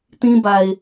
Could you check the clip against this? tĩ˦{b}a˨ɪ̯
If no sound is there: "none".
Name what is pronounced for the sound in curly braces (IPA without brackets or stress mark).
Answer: b